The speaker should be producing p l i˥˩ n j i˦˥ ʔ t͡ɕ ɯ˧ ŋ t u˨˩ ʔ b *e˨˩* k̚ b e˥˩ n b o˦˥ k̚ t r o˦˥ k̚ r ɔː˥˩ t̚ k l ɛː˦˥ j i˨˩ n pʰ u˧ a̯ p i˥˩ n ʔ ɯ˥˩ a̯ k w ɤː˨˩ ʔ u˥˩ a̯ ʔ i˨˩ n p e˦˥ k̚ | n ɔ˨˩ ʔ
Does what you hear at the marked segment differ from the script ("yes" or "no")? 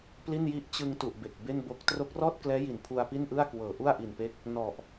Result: no